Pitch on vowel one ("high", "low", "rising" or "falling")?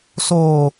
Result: low